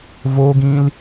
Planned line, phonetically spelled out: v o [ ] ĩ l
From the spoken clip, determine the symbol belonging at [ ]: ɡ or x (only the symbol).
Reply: ɡ